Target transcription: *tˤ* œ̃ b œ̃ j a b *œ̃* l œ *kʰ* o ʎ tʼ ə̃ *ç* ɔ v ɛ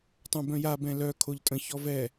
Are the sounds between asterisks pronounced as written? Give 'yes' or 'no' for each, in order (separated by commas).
yes, no, yes, yes